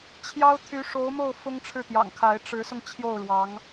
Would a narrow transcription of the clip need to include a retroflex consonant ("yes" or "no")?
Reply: yes